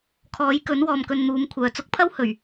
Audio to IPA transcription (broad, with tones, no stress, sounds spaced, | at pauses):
kʰ ɔː˨˥ j k ɵ˨˥ n w ɔː˨ m k ɵ˨ n n̪ uː˨˧ m kʷʰ œː˨ t͡s ʊ˧ k̚ pʰ ɐ˥ w h ɵ˨˩ ɥ